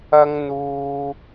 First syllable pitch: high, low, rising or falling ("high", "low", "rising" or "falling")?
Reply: high